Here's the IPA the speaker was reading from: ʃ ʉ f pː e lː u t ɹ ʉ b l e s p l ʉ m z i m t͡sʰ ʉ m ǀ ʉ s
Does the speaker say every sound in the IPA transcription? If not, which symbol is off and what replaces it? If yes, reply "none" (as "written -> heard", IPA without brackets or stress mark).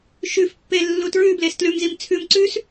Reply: p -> t